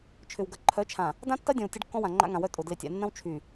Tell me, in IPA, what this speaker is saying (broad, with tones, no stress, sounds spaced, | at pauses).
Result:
t͡ʃʰ ʏ˨ w ɡ ɐ˨ ǃʰ œ˨˦ t͡ʃʰ ã˨ | d ã˦ tː ɐ˦ dʲ ɔ̃˨ w tʲ ɐ˦ ɖ kː ɔ̃˦ w ã˨ ŋ͡ǃ a̰˦ ŋ ã˨ w œ˦ tʼ ʊ˨ d l ɪ˨ tʲ a̰˨ nː ɐ̃˦ w t͡ʃʰ y˨